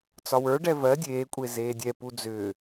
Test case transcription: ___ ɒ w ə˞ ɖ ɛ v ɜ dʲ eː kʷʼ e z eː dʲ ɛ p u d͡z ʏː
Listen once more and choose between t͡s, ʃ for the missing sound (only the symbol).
t͡s